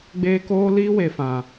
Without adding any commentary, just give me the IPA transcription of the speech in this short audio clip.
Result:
ɡ͡b eː˦ k oː˦ l iː˦ w e˨ f ã˨

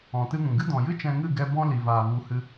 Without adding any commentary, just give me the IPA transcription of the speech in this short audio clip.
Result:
ɔ̃˨ t ɨ˧ ŋ ũ˨ ɡ ɨ˦ d ɔ̃˨ j ɨ˦ t͡ʃ ɛ̃˧ ŋ ɨ˦˨ ɡ ɛ˧ b ɔ̃˦ l i˨ v aː˨ v u˨˦ h ɨ˧

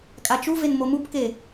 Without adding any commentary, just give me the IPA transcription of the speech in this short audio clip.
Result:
kʼ a t͡ʃ u v e n m o m u p k e

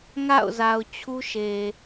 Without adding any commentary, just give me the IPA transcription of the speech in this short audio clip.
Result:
ŋ a̰˦˨ ʊ̯ z a˨ ʊ̯ t͡ɕʰ u˦ ʃ e˨

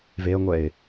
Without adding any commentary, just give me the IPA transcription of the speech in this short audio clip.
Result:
v e ə̯ ŋʷ ɛ ɪ̯

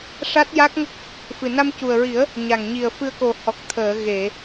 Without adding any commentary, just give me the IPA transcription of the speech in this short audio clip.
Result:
ʂ a˦˥ t̚ j a˦˥ k̚ ŋ ə˦˥ k̚ | f ɨ˨˩ n a˧ m c u˨˩ ə̯ ɹ i˨˩˦ ə̯ | ɲ a˨˩ ŋ ɲ i˨˩ ə̯ f ɨ˧ ə̯ k o˨˩ h ɔ˨˩ k̚ t̪ʰ əː˨˩˨ ɣ e˨˩˨

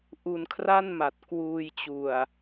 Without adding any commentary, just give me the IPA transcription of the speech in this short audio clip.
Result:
ʔ u˧ n kʰ r a˥˩ n m a˨˩ t̚ k w uː˧ j t͡ɕ u˨˩ a̯

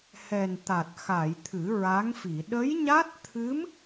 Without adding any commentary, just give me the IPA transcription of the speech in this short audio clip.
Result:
h ɛ˨˩ n t̪ a˨˩ t̚ x a˨˩˨ j t̪ʰ ɨ˨˩˦ ɹ a˧˥ ŋ f i˨˩˨ ɗ ə˧˥ j ɲ a˦˥ t̚ t̪ʰ ɨ˧˥ m

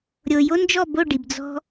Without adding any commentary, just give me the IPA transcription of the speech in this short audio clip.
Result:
ɾʲ o˨ j o˦ n d͡ʒ ɔ˦˨ b o˦˨ ɖ i˨ b d͡z ɔ̤˦

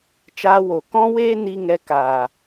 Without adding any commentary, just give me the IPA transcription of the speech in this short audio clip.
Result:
t͡ʃ aː˧ w o˨ k ɔ̃˦ w eː˦ n i˧ ŋ ɛ˧ k aː˨

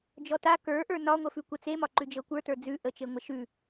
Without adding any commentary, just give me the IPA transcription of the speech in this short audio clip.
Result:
d͡ʒ ɔ t a k ə˞ ʔ ə˞ n ɒ ŋʷ ə f ʉ kʷ ə t͡s e m ɒ ǃ ʉ d͡ʒ ɤ kʷ ə˞ t ə˞ d͡z ʉ ʔ ə t͡ʃ e ŋʷ ə ʃ ʉ

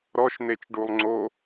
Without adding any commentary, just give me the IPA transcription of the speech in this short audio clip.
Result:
ɾ ɔ ʃ n̪ e t͡ʃ ɖ u lˠ ŋ͡ǀ o

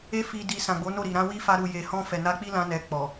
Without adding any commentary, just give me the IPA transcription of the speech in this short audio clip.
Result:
e˧ f i˨ d i˨ s ã˨ ɡ͡b o˨˦ n o˦˨ ɾ i˨ ɾ ã˧ w i˦ f a˧ ɾ u˨ j e˨ h ɔ̃˧ f ɛ˨ n a˧ k͡p i˦ l ã˧ n ɛ˧ k͡p ɔ˨

